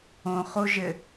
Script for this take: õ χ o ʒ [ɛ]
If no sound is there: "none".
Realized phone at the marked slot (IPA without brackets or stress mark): ɘ